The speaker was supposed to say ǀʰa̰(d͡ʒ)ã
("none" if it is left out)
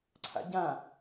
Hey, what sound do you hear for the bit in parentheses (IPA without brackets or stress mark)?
ɟ